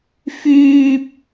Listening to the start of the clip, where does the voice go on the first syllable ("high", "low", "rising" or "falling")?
low